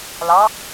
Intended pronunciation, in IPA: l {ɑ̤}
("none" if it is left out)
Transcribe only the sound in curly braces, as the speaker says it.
ɑ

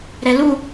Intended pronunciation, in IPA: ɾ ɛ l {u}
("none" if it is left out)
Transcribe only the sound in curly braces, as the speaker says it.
u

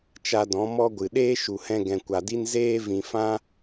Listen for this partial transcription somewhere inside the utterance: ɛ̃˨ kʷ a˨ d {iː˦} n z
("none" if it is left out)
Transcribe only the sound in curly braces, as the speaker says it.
i˦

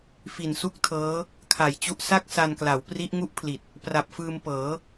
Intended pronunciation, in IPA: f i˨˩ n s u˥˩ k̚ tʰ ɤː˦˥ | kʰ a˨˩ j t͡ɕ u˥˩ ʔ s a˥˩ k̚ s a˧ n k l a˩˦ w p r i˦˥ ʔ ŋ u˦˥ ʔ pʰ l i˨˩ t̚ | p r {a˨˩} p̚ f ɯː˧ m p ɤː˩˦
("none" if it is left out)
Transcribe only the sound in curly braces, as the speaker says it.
a˨˩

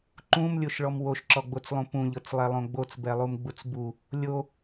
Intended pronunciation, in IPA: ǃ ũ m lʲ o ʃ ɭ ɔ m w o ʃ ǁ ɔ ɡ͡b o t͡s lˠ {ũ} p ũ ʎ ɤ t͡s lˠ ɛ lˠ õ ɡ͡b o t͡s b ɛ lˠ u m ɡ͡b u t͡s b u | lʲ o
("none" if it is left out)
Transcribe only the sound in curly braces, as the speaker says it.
ũ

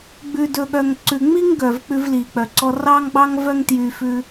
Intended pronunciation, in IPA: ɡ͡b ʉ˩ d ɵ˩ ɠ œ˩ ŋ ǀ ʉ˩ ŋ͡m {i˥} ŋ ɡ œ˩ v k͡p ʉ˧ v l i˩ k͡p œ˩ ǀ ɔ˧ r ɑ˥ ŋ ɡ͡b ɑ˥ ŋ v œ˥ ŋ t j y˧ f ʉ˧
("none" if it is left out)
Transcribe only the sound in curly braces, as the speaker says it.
i˥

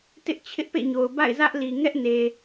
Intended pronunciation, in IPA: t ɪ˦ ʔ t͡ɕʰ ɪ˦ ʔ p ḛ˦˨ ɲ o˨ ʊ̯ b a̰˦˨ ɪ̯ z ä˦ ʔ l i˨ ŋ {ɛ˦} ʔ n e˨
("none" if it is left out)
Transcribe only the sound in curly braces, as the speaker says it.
ɛ˦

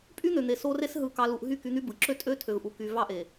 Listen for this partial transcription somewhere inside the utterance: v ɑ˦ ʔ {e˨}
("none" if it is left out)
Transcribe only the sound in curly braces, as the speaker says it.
e˨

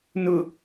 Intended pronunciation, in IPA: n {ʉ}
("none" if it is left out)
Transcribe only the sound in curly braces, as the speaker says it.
ʊ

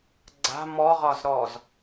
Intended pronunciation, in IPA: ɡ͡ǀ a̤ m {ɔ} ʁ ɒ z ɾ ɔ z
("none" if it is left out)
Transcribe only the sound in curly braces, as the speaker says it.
ɔ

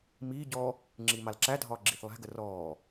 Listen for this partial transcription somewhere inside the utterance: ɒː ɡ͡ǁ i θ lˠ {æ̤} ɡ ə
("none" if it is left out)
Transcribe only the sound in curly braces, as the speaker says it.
æ̤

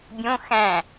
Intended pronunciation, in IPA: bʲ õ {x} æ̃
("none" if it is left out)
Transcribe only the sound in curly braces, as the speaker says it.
x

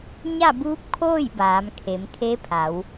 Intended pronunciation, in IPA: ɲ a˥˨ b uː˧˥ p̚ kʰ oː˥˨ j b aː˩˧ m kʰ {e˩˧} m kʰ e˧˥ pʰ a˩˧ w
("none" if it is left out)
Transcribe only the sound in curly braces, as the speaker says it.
e˩˧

